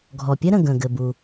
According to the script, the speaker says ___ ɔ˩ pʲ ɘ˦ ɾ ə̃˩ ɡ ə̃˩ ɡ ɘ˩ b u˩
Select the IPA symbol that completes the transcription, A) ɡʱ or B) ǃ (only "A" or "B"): A